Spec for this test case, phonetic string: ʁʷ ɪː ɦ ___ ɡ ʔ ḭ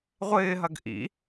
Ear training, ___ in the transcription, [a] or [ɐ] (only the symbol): ɐ